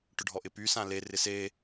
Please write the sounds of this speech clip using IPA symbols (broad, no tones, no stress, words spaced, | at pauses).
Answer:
ʈʊɖʱɔʔɪpy sãle rɪse